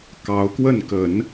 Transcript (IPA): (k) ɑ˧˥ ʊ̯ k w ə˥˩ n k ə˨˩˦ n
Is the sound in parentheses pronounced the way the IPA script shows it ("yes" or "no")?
yes